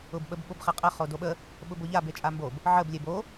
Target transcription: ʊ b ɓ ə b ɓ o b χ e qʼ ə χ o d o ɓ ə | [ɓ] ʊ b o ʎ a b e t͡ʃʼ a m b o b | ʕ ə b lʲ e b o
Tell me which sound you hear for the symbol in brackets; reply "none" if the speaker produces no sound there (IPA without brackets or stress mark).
ɓ